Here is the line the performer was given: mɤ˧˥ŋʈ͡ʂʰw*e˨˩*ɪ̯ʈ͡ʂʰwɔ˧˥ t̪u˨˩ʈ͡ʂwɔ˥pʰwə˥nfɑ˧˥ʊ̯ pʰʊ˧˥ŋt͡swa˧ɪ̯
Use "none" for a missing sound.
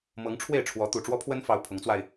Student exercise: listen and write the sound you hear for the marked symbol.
e˥˩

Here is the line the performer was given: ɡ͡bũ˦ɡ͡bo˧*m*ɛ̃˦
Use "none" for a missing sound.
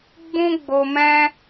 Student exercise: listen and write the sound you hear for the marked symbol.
m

